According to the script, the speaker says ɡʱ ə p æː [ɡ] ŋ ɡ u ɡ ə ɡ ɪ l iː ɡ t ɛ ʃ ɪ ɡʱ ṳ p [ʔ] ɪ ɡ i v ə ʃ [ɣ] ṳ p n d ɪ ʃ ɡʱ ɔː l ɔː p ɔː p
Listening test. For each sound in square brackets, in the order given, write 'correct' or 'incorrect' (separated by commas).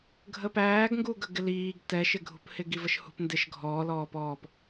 correct, incorrect, incorrect